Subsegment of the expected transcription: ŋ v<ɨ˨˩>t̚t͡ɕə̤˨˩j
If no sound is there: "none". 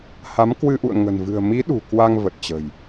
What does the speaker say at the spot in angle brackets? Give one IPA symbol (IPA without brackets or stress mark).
ə˨˩